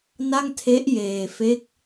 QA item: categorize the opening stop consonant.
aspirated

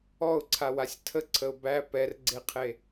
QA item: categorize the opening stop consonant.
click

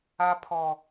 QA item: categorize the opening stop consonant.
aspirated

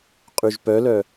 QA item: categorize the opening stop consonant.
ejective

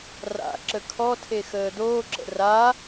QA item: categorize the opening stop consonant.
click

